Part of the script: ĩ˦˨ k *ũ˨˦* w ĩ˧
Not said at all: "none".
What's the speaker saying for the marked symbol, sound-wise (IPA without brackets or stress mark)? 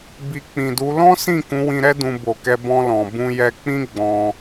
ũ˨˦